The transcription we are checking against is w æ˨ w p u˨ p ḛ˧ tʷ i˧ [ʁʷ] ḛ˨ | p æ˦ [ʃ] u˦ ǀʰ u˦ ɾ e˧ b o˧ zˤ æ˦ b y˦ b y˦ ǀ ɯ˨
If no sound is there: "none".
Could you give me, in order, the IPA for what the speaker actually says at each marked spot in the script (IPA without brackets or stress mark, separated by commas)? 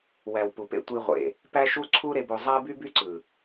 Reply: ʁʷ, ʃ